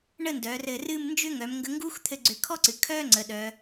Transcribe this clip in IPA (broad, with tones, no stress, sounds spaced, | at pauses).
ɳ ə˥˧ n d œː˩˧ r ɘ˧˩ r ɨː˥˧ m n d͡ʒ ʏ˥ ŋ œ˩˧ m ŋ ɡ ə˧ ŋ ɡ uː˥ x t̪ʰ ɘ˧ ɡ͡ǀ ʏ˧˩ kʰ ɔ˥ ǀ ɨ˩˧ kʰ œː˥ ŋ͡ǀ ə˩˧ ɗ œ˩˧